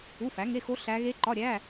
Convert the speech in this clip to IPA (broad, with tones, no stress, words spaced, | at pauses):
u˧˥˧fæ˨˥ ŋe˧˥˧xo˦˥ ɬæ˦˥ ɣe˦˥ǃɒ˧˥˧ɾʲæ˧˥˧